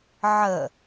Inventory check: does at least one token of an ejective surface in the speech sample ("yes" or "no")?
no